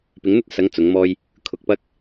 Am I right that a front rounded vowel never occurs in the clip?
yes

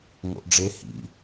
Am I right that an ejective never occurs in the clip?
yes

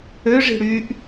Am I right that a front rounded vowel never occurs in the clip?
no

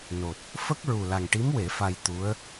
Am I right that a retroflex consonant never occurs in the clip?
no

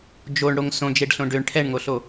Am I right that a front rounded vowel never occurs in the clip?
no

